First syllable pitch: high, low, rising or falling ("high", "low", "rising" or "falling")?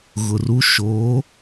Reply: low